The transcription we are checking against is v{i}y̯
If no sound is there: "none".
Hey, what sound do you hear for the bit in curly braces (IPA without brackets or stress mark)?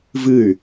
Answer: ɨ